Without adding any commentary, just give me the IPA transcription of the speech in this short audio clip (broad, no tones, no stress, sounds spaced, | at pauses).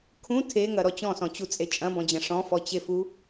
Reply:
kʰ ũ tʰ e ŋ ɐ ɾ ɔ t͡ɕ ɔ̃ s ɔ̃ t͡ɕ u t͡sʼ e t͡ʃʼ ɐ̃ b ɔ̃ d͡ʑ ɐ̃ ʂ ɔ̃ f ɔ t͡ɕ e f u